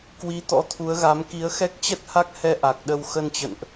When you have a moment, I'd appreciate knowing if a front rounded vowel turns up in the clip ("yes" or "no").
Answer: no